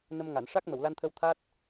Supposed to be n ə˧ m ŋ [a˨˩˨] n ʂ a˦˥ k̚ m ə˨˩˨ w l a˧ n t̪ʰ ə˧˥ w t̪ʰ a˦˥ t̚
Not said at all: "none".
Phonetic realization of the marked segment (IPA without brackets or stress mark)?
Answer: a˨˩˨